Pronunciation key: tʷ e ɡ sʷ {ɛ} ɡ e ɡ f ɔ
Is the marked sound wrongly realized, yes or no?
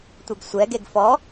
no